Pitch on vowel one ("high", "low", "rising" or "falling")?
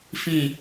falling